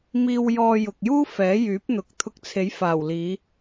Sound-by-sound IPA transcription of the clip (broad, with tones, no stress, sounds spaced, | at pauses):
m iː˧ w j ɔː˧ j ʊ˨ k̚ j uː˥ f ɛː˨˥ j yː˨˥ p̚ n̪ ʊ˨ k̚ t̪ʰ ʊ˧ k̚ t͡sʰ e˨˥ j f aː˨˩ w l iː˨˧